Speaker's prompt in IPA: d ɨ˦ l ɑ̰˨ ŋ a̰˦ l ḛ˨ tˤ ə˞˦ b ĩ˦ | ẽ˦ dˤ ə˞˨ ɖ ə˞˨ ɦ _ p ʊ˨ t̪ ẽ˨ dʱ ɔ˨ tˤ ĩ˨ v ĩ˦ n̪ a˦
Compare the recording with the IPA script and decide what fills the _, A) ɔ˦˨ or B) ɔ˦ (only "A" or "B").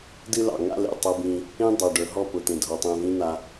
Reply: A